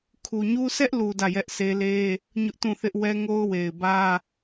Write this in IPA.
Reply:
kʰ u˨ ɲ u˦ s ɛ˦ ʔ l u˨ d ä˦˨ j ɛ˦ ʔ sʰ e˦ l e˦ | ɲ ʊ˦ ʔ t ũ˦˨ θ ɪ˦ ʔ w ɛ˦ ŋ o˦ ʊ̯ w e˨ ɪ̯ b ä˦

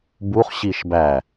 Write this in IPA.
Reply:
b u χ ɕ i ʃ b æ

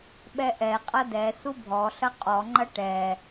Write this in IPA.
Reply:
ɓ ɛ ʔ ɛ qʼ ɐ d ɛ s u bʱ ɔ ɬ ɐ qʼ ɔ ŋ͡ǃ ɐ ʈ ɛ

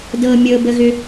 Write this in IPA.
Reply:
d ɤ mʲ ɤ b ə ɣ ʏ

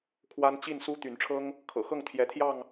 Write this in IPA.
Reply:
kʰ w a˦ n t͡ɕ i˥˨ n s u˦ t̪ y˨˦ n ʈ͡ʂʰ ɤ˦ ŋ | kʰ ɤ̰˨˩ x ɤ˥˨ ŋ t̪ʰ j ɛ˨˦ t̪ʰ j ɑ˥˨ ŋ

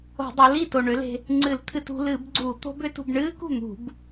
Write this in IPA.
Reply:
o̤˧˩˧ dˤ o˩˥ l iː˥˩ t o˨˩ ɳ ʏ˩˥ l e̤˧ | ŋ͡ǀ ɨ˧˩˧ l t̪ʰ ɨ˧ t ṳ˧ l ɨ˧˩˧ b ɡ͡ǀ u˧˩˧ t̪ o̤˦˥ b ʏ˦˥ t ṳ˧ b ɳ ɨː˦˥ k ṳ˥˩ n̪ ṳ˧˩˧ b

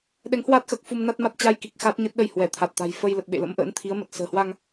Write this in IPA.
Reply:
ɗ ɛ˨˦ ŋ h w aː˦˥ t̚ x əː˨˩ k̚ f u˧ m n a˦˥ t̚ m a˦˥ t̚ t͡ɕ a˧ j k i˨˩ k̚ x aː˦˥ t̚ ɲ ə˦˥ t̚ ɗ ə˧ j h w ɛ˧˩ t̪ʰ a˨˩ t̚ t̪ a̤˨˩ j f ə˧ j l ə˨˩ t̚ ɓ ḛ˧˨ l ə̰˧˥ m ʔ ə̰ː˧˥ n t̪ʰ i˨˦ ə̯ m ə˨˩ t̚ s ə̤ː˨˩ h w a˧ ŋ

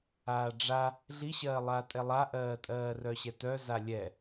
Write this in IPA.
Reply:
aː ɖ͡ʐ a | ɮ i ɕ ɜː lˠ aː tʼ ɛ lˠ a ʔ ɜː tʼ ɜː r œ ɕ ɛ t œ z a lʲ ɛ

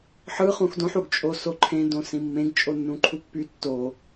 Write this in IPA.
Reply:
ħ ɯ χ ũ x d õ ħ u ɡ t͡ʃʼ o s o ǃʰ ẽ d õ s ĩ mː ẽ ɡ t͡ʃʼ o nː ũ ǃʰ u pː y tː o

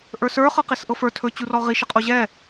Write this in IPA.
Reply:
ʔ ə˞ s ə˞ χ ɤ q i s ʔ ɤ f ə˞ tʰ ɵ t͡ɕ u r ɔ ʁ i ʃ ə qʼ o ʑ ɛ

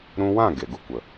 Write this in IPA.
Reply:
ɾ ũ˧ w ã˦˨ ɡ e˨ ɡ u˧ kʷ ə˨

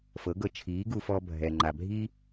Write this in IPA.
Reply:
f ɤ˩˥ ɡ ɤ˧ t͡ʃʰ iː˩˥ ɡ u˧ f ɔ˧ bʱ ɛ˩ ŋ͡ǃ a˩ bʱ i˥

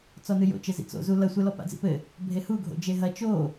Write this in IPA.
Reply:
t͡s ɔ n ɨ j o̰ t͡ʃ ɘ z ḭ t͡s o̰ z u l ɐ sʷ ɛ l ɔ p a̰ d͡z ḭ p ɘ | bʱ e h u ɡʱ o̰ d͡ʒ e ɦ ɐ t͡ʃ o

